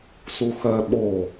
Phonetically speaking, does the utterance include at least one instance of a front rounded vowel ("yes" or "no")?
yes